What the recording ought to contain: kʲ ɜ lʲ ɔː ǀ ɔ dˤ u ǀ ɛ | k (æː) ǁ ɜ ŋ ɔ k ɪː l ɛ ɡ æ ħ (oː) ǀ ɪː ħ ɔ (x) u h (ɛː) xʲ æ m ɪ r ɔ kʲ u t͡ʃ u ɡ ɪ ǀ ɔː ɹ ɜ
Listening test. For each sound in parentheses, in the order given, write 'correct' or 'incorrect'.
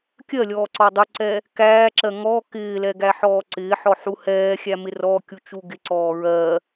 correct, incorrect, incorrect, correct

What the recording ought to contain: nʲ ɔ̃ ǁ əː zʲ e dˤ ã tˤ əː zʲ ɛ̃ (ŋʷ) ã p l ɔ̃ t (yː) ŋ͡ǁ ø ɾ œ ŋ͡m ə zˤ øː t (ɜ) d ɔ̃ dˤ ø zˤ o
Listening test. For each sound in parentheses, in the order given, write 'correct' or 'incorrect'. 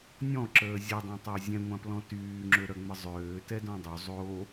correct, correct, incorrect

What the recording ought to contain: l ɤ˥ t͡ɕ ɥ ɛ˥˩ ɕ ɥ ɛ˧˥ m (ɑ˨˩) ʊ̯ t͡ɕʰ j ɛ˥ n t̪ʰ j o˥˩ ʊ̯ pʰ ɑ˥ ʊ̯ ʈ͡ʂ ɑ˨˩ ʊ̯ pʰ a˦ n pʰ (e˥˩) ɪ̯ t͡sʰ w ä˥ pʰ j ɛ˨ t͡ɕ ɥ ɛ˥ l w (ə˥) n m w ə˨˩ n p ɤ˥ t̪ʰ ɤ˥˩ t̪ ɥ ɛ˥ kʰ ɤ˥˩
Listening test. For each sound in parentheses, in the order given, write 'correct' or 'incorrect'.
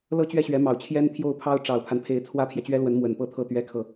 correct, incorrect, incorrect

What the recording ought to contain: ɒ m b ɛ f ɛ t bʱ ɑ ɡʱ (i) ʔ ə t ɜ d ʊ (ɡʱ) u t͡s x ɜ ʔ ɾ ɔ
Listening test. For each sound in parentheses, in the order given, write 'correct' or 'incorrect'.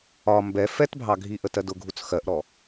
correct, correct

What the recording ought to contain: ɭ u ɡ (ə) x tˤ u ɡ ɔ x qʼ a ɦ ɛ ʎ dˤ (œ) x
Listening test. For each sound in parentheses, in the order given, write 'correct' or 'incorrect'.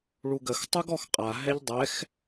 correct, incorrect

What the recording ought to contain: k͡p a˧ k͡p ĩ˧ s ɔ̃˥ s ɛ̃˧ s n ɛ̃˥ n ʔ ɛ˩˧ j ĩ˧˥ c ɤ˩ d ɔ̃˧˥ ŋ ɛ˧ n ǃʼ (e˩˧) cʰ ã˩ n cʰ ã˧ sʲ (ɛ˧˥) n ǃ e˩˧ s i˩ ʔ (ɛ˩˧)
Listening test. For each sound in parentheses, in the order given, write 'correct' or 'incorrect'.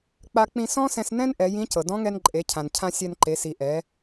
correct, incorrect, correct

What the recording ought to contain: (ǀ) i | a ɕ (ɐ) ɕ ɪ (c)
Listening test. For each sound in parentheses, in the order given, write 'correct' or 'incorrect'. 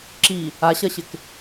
incorrect, correct, incorrect

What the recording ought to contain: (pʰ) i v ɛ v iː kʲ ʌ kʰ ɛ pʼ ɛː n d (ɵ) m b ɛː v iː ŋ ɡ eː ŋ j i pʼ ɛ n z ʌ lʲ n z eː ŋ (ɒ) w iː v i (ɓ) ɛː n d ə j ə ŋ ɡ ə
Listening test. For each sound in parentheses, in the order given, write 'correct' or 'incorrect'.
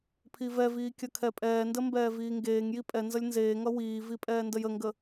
correct, incorrect, incorrect, incorrect

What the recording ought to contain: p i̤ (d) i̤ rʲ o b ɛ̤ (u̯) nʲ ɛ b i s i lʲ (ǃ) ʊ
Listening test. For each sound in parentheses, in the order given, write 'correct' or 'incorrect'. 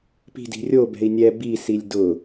correct, incorrect, incorrect

